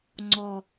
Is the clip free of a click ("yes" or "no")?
no